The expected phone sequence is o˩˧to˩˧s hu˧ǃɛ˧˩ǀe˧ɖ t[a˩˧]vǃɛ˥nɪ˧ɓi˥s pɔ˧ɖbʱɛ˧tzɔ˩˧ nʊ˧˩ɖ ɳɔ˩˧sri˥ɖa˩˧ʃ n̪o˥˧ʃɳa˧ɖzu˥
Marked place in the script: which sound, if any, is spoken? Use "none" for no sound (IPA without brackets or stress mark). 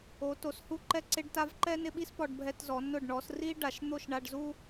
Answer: a˧